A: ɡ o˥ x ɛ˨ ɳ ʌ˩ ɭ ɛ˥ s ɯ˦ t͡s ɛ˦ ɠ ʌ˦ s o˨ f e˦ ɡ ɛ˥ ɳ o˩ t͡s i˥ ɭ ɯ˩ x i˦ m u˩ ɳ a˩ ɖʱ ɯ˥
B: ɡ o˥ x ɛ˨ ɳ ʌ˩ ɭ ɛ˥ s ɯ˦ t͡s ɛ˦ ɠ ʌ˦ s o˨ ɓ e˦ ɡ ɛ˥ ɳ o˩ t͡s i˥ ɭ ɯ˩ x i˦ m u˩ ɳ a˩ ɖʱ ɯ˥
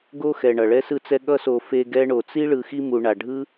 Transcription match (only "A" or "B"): A